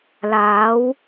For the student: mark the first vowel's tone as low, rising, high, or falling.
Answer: rising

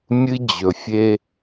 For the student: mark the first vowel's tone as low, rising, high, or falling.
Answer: high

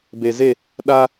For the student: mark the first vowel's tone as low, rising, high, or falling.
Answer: low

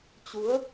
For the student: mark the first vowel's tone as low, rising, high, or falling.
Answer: rising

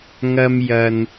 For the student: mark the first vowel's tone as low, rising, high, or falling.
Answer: high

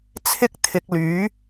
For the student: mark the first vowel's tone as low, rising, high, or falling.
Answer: high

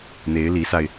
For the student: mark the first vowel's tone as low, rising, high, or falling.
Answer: rising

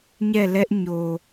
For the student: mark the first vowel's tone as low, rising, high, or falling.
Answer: falling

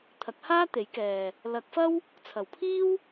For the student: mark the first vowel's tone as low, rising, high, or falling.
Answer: rising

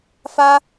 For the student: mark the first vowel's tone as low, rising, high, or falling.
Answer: high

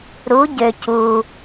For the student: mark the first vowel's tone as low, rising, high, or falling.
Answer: rising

